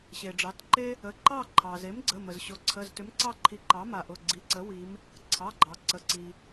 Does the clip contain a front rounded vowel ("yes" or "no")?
yes